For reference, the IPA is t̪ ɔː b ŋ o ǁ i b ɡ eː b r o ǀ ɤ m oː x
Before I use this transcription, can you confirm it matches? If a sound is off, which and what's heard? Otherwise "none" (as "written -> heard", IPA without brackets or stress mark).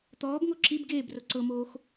none